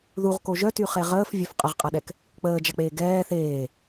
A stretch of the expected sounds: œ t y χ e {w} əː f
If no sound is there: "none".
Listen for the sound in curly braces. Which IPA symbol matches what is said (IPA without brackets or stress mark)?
ʁ